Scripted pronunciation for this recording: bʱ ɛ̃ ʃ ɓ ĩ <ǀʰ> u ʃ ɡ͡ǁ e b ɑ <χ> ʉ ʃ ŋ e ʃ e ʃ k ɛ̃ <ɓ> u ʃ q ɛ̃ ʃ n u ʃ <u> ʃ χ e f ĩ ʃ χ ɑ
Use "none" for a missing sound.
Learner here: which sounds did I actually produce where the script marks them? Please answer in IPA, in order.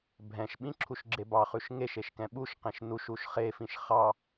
ǁʰ, χ, ɓ, u

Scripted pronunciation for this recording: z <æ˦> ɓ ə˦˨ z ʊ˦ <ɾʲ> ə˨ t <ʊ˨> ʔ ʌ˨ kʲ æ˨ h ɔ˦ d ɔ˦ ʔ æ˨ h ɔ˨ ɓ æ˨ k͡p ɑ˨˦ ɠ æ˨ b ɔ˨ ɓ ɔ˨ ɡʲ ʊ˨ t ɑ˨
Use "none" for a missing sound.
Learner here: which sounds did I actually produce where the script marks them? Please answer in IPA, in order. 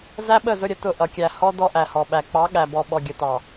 æ˦, ɾʲ, ʊ˦˨

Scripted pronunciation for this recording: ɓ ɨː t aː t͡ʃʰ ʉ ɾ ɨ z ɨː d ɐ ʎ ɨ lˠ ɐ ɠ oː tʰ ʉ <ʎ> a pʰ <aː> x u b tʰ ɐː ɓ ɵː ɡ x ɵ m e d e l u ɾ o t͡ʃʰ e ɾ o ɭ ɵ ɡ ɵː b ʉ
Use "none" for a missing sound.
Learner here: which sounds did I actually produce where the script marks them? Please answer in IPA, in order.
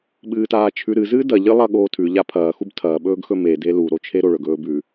ʎ, ɐː

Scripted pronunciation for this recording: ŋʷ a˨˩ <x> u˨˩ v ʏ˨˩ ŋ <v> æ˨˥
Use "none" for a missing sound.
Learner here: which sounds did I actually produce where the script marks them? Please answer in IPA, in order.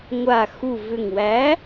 x, w

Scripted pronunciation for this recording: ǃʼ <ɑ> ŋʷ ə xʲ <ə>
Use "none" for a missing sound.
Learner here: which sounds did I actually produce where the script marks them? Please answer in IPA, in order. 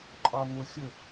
ɑ, ə

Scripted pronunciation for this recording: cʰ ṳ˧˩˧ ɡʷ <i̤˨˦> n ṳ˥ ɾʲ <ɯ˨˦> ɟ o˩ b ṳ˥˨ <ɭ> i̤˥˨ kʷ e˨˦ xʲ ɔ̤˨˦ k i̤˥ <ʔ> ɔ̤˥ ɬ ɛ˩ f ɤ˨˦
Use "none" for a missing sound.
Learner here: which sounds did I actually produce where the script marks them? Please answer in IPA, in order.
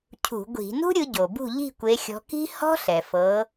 i̤˧˩˧, ɯ˨˦, ʎ, h

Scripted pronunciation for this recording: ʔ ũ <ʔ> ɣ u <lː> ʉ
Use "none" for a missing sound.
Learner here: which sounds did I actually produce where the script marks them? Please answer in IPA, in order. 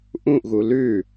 ʔ, l

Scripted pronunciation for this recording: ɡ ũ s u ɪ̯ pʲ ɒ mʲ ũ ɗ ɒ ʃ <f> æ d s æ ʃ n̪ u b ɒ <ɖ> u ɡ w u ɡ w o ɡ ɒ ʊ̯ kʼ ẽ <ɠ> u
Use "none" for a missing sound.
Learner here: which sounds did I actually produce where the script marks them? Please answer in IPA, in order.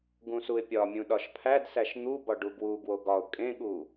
pʰ, ɖ, ɠ

